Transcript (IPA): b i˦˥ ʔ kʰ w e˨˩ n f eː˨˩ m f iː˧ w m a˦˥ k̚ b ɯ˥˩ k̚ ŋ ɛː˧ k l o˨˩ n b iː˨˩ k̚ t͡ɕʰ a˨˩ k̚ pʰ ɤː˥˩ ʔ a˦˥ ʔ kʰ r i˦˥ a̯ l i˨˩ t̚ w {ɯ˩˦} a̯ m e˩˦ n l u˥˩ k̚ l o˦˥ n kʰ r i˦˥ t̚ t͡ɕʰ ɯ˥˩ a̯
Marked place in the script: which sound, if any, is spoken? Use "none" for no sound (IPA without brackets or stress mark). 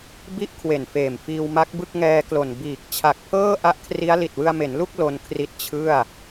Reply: ɯ˧